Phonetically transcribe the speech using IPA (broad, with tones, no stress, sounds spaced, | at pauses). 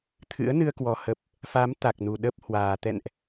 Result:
t̪ʰ ɨ̰˧˥ ə̯ n ɨ˧ ə̯ k w ɔ˨˩ h ə˦˥ p̚ | f a˨˦ m t̪ a˨˩ k̚ n u˨˩ ɗ ə˦˥ p̚ h w aː˨˩ t̪ ɛ̰˧˨ n ʔ